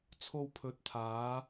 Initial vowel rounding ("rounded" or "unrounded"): rounded